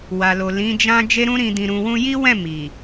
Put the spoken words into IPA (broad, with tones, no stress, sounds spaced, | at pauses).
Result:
w a˨ l o˨ l ĩ˨˦ d͡ʒ ã˦ d͡ʒ e˦ ɾ ũ˦ ɾ ĩ˧ d ĩ˧ ɾ ũ˧ w ũ˧ j i˦ w ɛ̃˦˨ m i˨